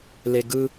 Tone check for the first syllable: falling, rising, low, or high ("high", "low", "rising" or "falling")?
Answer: high